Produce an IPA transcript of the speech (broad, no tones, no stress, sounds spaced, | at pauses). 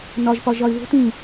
n ɒ ʒ p ɒ ʒ ɒ ɪ̯ β o̤ t ĩ